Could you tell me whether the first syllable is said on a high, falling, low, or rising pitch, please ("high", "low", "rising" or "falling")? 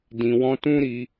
low